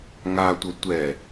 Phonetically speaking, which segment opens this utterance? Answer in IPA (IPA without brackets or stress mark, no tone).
ŋ